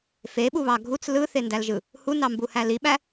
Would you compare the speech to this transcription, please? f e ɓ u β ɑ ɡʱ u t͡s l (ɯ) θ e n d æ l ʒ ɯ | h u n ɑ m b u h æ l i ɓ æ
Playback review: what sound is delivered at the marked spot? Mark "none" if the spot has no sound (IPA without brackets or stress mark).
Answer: ɯ